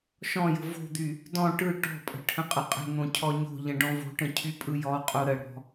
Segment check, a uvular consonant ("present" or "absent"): present